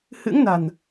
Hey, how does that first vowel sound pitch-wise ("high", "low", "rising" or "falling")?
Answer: rising